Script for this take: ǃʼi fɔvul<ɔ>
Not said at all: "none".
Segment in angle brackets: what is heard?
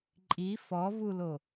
o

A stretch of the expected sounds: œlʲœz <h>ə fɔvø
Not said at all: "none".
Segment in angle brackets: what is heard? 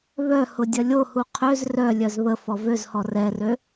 β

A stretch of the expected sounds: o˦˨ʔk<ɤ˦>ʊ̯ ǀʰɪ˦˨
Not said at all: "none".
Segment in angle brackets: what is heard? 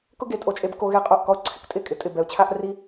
ɔ˦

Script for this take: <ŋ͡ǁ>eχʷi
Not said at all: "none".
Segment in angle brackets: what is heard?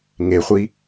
ŋ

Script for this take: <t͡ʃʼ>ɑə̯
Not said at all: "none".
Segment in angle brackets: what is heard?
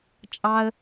t͡ʃʼ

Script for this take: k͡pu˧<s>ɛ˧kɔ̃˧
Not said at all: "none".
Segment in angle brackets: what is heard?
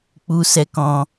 s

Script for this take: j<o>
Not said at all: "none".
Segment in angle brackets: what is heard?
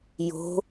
o̤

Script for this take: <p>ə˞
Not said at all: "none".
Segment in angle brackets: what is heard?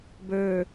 b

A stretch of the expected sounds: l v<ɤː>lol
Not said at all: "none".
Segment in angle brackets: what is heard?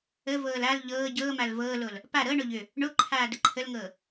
ɤː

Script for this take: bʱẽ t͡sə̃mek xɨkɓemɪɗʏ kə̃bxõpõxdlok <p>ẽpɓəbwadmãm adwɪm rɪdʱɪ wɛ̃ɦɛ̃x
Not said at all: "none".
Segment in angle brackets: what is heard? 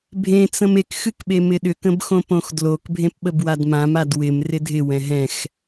bʱ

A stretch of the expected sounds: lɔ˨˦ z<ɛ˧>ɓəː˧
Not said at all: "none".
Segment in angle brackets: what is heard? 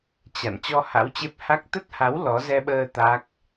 ɛ˧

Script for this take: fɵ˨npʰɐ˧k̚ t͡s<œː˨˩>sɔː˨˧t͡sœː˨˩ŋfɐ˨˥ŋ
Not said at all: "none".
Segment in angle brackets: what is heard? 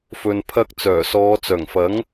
œː˨˩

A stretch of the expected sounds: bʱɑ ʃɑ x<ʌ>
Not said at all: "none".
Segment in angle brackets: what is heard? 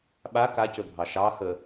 ə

